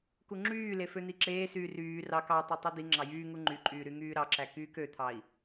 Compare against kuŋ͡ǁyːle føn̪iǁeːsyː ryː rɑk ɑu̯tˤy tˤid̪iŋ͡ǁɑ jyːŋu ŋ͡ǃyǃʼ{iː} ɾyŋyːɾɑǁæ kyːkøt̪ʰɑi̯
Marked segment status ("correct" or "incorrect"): incorrect